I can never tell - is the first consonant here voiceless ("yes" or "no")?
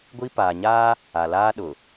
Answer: no